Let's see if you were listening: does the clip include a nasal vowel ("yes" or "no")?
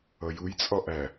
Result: no